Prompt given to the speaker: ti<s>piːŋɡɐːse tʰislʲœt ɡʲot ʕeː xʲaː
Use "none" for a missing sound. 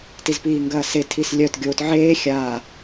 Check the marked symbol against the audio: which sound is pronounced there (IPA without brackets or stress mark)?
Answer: z